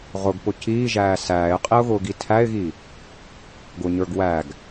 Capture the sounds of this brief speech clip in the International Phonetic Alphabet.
ʁ ʊ ɡ p ʊ c iː ʒ æː s æː ɪ̯ qʼ i ʊ̯ ɣ ʊː ɡ i tʰ æ ɪ̯ ɣ i | ɡ ʊ ɲ ə˞ ɡ w æ ɡ

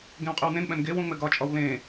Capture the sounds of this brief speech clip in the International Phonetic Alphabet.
ɡ ẽ w qʼ ɘ w n ẽ n ɓ ɛ̃ n ɡ e w ũ ŋ͡m ɘ ɡ ɒ t͡ʃʼ ɒ w l ẽ

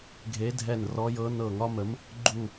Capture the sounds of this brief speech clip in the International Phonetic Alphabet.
ɡʱ e˧˥ dʱ ɛ˦˨ n r ɔ˧˥ j ɤ˧˥ n ɤ˦˨ ŋ ɒ˥ m ə˧˥ m | ɡ͡ǃ u˦˨

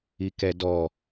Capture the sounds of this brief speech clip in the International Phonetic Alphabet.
i k ɛ d ɔ

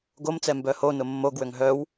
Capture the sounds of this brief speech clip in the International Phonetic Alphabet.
ɡ o m t͡s ɛ m b œ h o n ʊ mː o ɡ w ø ŋ ɦ œ w

